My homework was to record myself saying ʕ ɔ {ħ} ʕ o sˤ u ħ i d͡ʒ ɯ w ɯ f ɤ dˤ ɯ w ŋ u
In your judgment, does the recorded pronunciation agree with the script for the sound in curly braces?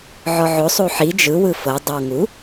no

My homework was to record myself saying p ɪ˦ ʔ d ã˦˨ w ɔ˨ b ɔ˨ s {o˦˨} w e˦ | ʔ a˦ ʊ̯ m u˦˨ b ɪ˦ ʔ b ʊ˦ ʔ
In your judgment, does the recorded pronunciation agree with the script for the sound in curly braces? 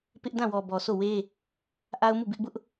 yes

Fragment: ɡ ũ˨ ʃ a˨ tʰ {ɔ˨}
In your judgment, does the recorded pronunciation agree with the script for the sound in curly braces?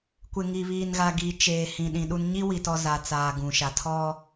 no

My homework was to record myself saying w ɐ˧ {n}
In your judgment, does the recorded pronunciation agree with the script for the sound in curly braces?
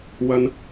yes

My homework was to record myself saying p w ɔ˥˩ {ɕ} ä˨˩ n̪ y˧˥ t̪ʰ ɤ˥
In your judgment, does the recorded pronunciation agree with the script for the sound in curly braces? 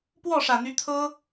no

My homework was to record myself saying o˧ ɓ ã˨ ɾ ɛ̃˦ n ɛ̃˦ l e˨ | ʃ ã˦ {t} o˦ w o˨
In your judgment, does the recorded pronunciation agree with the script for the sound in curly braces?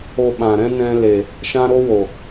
no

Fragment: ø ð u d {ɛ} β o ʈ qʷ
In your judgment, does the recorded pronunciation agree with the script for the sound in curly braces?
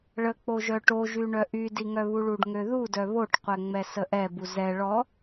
no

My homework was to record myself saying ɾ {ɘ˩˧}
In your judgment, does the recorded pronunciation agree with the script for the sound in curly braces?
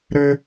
no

